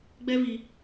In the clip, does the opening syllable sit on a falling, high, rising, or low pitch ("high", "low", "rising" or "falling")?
high